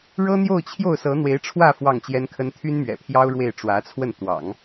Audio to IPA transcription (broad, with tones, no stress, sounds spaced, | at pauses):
ɻ ɤ˥ n̪ j o˥˧ ʊ̯ t͡ɕʰ j o˥˩ ʊ̯ s ɤ˧˥ n̪ w e˧˥ ɪ̯ ʈ͡ʂʰ w ä˥˧ f w ɑ˥˩ ŋ t͡ɕ j ɛ˥ n kʰ ə˥ n t̪ʰ y˥ n m ɥ ɛ̰˨˩ pʰ j ɑ˥ ʊ̯ ɻ w e˥˩ ɪ̯ ʈ͡ʂ w ä˧˥ t͡sʰ w ə˥˩ n t̪ w ɑ̰˨˩˦ ŋ